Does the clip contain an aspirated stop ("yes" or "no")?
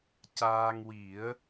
no